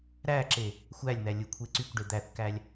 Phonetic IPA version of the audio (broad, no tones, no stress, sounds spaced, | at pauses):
ɾ æ ǁ e | xʷ æ lʲ n̪ æ lʲ ɯ kʷʰ e ǀ y kʷ ɖ e d̪ æ θ k æ lʲ